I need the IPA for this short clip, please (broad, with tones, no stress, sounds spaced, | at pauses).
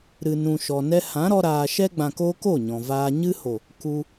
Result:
ɾ ɨ˨ n ũ˨ ʃ ɔ˨ n ɛ˧ h ã˨˦ ɾ ɔ˧ ɾ aː˨ ʃ ɛ˦ ɡ͡b ã˨ k oː˧ k o˦˨ ɲ ɔ̃˨ v aː˧ ɲ ɨ˧ h o˨ | k u˧